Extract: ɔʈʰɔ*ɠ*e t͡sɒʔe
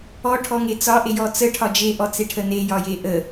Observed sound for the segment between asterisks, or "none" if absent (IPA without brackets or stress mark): ŋ